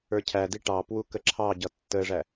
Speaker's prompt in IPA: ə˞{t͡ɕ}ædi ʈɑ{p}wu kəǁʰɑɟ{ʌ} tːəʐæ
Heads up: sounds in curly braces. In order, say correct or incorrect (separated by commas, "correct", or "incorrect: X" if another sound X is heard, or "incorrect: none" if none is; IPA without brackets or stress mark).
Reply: incorrect: cʰ, correct, correct